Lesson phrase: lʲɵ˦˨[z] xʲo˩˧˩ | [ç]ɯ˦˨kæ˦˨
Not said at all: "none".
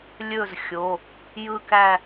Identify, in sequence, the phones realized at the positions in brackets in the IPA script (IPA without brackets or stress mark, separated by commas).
z, j